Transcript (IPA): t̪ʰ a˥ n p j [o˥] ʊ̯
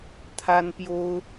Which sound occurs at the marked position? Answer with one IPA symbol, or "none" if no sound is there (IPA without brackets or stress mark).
o˥